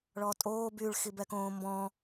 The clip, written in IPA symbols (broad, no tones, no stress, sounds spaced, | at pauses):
ɭ ɔ tʼ oː b y ɭ x i b ɛ k õː m b ɔ̃